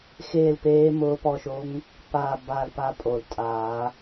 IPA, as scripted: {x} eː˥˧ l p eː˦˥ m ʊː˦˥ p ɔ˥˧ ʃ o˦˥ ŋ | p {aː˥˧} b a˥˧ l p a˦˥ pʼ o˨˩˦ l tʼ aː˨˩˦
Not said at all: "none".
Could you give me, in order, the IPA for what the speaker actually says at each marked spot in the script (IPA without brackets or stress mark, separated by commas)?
x, aː˥˧